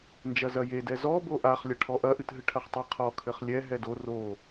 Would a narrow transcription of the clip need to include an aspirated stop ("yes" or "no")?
yes